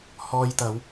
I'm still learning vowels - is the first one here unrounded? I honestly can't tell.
no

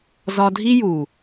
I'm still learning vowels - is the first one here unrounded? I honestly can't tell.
no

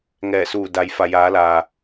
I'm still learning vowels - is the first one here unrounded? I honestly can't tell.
yes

